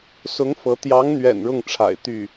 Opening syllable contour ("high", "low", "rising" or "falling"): rising